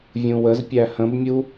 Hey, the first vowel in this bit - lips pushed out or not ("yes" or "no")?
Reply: yes